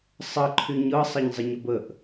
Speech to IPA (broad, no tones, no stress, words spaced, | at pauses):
sˤə ǃʰyɲɤ sˤɤɲzˤəɲɤbəʔ